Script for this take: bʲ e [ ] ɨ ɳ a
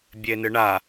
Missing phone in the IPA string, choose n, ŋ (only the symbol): n